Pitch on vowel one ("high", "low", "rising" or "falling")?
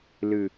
low